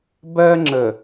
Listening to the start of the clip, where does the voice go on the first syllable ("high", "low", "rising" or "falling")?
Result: high